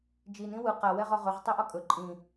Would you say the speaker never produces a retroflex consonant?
yes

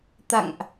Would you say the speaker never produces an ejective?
yes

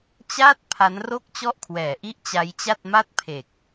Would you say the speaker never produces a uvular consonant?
yes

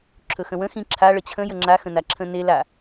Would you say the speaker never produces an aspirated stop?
no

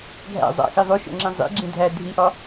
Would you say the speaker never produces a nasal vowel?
no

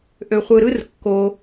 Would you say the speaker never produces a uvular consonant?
no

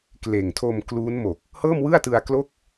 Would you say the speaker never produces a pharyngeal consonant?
yes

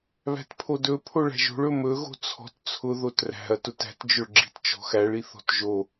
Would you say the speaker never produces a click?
no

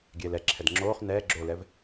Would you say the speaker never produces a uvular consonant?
no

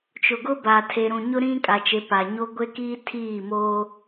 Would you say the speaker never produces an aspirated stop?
no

